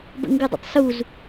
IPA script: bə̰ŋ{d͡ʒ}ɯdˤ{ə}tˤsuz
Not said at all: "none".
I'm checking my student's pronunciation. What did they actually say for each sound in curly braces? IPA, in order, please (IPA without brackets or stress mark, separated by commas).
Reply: ɡ, ə̰